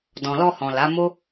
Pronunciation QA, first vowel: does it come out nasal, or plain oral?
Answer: nasal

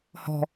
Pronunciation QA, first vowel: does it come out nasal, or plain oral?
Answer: oral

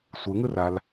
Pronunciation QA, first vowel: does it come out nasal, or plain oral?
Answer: oral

